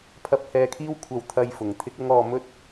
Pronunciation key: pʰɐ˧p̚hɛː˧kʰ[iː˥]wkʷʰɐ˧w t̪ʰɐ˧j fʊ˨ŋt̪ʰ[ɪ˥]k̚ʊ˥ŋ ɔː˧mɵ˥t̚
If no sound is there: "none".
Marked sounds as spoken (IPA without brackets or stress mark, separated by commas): iː˥, ɪ˥